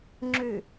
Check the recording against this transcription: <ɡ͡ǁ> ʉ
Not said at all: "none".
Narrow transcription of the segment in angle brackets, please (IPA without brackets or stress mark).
ŋ͡ǁ